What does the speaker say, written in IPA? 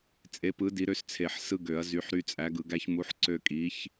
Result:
t͡sʼe˨˥pɯ˨˥ di˨˥ɾø˦st͡sʰe˨˩˦ħ sɯ˦ɡø˨˩˦ɐ̯ zy˨˥ħɾy˦t͡sʼæ˨˥ɡ ɯ˨˩˦ɡæ˦çmu˨˥ħ ǀø˦kʼi˨˥ç

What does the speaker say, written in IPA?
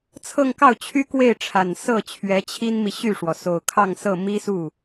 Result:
t͡sʰɤ˥˧ŋkɑ˥˩ʊ̯ t͡ɕʰy˥kwe˥˩ɪ̯ʈ͡ʂʰa˨˩n sɤ˥˩ t͡ɕʰɥɛ˧˥t͡ɕʰi˥nmi˨ ɕy˥˩ʂwɔ˩ so˨˩ʊ̯kʰɑ˥˧ŋsɤ˥˩ mi˥su˥˩

